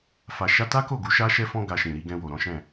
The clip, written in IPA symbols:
f a˨ ʃ a˧ t a˦ k o˦˨ ɡ u˨˦ ʃ a˦ ʃ ɛ˦ f ɔ̃˦ ɡ a˧ ʃ ĩ˨ ɾ i˧ ɡ ɛ̃˧ w o˨ ɾ ɔ̃˨˦ ʃ ɛ̃˦˨

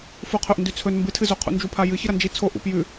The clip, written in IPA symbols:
f u qʰ ɵ ʔ n d ʉ t͡sʰ ɵ n m b ɨ tʰ ɨ z o qʰ ṵ n d͡ʒ u pʰ a j ɨ ç ɨ ɾ ɐ n d͡ʒ i t͡sʰ o ʔ ṵ p j ʉ

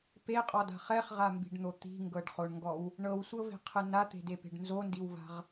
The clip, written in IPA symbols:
p e qʼ ɔ d a̤ χ ɛ χ ʁ a m b i̤ ɖ n̪ o t̪ i̤ ŋ ɡ ɤ ɖ χ o ɳ ŋ ɡ ɔ w | ɳ ɤ w sʷ ɤ v e̤ qʰ ɯ n a t̪ e̤ d e p e̤ ɖ n z o n d i w v a̤ ʁ

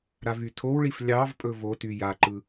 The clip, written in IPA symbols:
ɾ a v y tʰ o w ɭ i f lʲ ɑ v pʼ ɵ v o t y j a ǃ ɯ

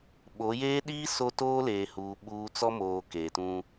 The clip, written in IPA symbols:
ɓ o˨˦ j eː˦ ɗ iː˦ s o˦ t oː˦ l eː˨ h uː˨ ɓ uː˦ t͡s ɔ˦ m oː˨ k eː˨ t ũ˦

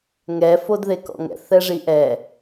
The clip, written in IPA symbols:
ŋ ɛ f o d ð e k ɔ̰ ŋ ɛ̰ θ ɛ ʐ i ʔ ɛ

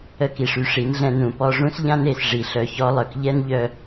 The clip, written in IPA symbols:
ə˧ k i˨ ʂ y˧ ʂ i˨˦ n ɮ ɛ̃˧ n ũ˨ p ɔ˧ ʐ ũ˦ s ʎ ã˦ n e˦˨ s ʐ i˨ ɬ œ˧ ç ɔ˦ lˠ œ˧ k ʎ ɛ˦ n ʎ œ˧

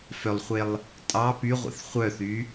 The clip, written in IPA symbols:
f œ lˠ χʷ e lˠ | tʼ ɑ p y ʁʷ ḛ θ χʷ œ θ y

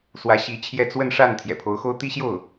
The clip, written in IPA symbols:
s w ä˧˥ ɕ i˧˥ t͡ɕʰ j ɛ˥˧ t͡s w ə˥˧ n ʂ a˥˩ n t̪ʰ j ɛ̰˨˩ pʰ o˧˥ ʊ̯ x o˥ ʊ̯ t̪ i˥ ɕ j o˥˩ ʊ̯

